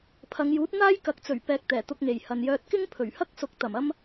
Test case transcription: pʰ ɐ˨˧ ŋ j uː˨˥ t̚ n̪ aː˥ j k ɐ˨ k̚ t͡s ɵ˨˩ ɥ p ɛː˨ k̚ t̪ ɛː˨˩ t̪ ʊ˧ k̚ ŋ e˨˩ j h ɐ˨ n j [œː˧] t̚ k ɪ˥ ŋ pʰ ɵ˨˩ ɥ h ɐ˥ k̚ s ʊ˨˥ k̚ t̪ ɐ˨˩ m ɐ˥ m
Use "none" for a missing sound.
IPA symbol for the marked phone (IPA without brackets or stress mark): œː˧